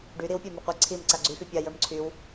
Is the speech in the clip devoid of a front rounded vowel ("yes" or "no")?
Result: no